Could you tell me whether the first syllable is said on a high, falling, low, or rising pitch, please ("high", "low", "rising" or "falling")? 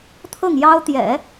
falling